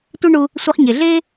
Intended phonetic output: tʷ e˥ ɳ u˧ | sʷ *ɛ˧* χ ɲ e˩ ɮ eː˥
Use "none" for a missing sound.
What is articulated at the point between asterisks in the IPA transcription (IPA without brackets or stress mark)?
ɛ˧